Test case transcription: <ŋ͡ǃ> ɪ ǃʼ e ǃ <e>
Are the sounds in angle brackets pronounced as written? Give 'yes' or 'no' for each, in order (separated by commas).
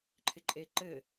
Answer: no, no